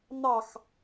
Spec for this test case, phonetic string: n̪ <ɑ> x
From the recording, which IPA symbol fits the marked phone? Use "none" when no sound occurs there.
ɑ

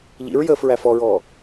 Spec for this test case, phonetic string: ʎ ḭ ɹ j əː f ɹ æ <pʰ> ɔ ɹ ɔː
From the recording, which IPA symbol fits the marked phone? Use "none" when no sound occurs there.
f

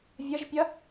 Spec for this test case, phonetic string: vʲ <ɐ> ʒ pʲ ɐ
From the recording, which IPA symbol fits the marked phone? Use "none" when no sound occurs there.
ɐ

